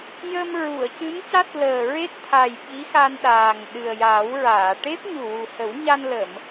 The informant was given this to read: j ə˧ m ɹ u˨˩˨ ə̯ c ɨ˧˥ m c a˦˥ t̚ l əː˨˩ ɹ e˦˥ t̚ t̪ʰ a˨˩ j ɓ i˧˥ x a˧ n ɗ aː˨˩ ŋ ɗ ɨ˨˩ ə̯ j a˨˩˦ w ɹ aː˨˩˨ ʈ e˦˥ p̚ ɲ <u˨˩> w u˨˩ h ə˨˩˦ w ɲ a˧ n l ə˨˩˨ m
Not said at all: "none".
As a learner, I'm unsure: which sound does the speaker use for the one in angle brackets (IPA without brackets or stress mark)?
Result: u˨˩